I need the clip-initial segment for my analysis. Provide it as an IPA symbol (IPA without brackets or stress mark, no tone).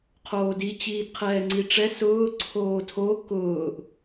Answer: qʰ